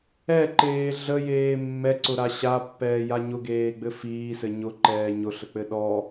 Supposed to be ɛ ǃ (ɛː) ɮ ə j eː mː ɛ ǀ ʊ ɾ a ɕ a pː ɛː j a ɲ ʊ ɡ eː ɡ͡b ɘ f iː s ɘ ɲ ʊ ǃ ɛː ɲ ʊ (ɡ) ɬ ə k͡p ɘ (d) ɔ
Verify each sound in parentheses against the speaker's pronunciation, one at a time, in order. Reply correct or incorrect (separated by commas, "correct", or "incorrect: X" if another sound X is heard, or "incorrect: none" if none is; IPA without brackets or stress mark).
incorrect: eː, incorrect: none, incorrect: ɗ